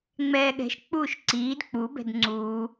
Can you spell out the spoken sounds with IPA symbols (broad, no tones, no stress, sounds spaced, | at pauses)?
ŋ͡m ɛː ɠ ɛ̤ ʃ k͡p uː ʃ ǀ iː d k͡p u b ɛ̤ d ŋ͡ǀ uː